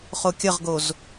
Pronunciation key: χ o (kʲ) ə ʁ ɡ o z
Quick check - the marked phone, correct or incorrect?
correct